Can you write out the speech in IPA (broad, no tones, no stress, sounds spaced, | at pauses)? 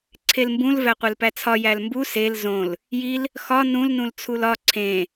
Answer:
ǀʰ e l m b ũ l v æ qʷ e l p æ t͡sʰ ɒ j æ l m b u s e l z õ l | j i l | x ɒ n ũ l n ũ l t͡sʰ u l ɒ ǀʰ ẽ